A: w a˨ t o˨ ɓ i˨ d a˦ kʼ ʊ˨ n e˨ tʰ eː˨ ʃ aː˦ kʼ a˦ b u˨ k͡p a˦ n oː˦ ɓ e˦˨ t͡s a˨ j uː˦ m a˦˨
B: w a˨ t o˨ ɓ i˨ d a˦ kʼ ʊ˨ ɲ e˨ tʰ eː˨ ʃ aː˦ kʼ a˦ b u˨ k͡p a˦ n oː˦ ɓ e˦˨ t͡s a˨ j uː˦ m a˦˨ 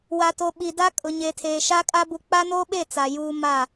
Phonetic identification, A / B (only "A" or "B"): B